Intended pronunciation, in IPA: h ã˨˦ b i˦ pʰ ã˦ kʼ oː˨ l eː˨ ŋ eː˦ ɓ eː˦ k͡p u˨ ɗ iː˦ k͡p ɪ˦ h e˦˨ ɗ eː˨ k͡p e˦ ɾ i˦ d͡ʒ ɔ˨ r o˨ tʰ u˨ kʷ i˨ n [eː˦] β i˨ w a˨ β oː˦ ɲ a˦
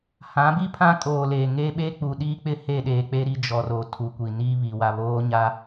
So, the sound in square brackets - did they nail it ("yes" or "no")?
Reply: no